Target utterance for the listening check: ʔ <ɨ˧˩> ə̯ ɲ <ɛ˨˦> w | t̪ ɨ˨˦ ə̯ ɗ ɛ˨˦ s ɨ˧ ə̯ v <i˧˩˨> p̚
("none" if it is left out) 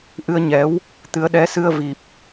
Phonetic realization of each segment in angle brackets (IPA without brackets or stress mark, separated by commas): ɨ˧, ɛ˨˦, i˨˩